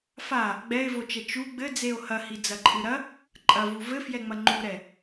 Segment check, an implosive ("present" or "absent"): absent